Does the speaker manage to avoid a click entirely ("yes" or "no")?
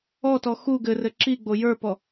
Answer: no